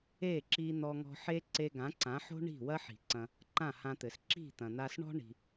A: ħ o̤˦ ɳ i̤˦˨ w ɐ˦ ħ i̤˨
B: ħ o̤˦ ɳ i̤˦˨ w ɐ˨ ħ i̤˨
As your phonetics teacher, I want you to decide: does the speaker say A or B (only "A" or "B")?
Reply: A